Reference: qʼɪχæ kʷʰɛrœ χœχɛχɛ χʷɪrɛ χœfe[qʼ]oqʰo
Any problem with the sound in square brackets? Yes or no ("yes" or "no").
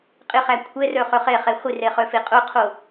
no